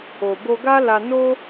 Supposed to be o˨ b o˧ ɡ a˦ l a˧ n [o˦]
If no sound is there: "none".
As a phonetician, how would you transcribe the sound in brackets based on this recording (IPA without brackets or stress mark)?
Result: o˦